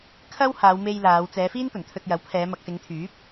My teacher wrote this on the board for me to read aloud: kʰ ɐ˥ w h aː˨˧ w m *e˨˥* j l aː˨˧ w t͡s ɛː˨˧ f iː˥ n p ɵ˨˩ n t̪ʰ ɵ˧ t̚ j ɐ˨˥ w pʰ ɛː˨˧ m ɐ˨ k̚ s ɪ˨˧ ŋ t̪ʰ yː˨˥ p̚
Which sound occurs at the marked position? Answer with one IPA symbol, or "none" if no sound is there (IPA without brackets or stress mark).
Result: e˧